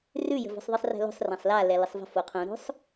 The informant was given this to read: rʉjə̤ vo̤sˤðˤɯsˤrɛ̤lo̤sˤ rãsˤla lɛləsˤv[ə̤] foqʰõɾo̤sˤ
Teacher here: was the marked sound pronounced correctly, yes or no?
yes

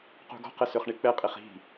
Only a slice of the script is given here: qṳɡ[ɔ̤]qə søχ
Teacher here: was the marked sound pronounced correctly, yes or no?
yes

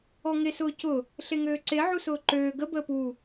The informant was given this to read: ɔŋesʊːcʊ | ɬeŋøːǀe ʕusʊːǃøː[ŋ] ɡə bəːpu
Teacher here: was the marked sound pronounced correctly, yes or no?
no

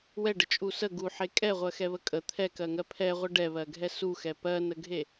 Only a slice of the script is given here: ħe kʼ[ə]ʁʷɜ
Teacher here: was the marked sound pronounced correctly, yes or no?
no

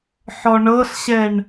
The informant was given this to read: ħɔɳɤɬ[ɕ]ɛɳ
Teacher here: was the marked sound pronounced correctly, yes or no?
yes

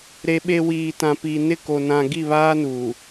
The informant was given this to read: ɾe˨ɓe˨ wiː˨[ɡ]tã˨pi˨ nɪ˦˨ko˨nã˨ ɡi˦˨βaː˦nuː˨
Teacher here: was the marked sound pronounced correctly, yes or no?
no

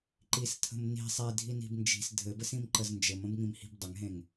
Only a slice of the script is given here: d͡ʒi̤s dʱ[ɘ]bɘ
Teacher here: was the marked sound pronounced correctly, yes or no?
yes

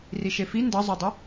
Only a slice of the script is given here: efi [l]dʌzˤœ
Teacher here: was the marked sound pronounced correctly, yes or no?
no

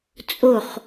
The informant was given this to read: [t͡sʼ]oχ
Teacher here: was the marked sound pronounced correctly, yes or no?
yes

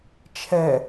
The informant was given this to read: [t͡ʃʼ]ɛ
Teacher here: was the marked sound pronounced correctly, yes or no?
no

